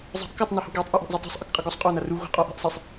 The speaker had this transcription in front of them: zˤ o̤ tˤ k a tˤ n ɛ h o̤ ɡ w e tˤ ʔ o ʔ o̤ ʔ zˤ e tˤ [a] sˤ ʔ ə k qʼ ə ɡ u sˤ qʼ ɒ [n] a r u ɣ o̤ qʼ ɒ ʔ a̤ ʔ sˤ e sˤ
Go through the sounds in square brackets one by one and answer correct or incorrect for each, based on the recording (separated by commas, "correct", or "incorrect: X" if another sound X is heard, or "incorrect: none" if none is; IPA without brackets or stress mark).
incorrect: a̤, correct